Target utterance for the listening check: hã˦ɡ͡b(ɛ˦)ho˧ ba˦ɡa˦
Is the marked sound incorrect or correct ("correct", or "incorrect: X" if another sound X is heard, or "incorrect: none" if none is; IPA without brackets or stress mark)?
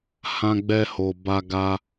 correct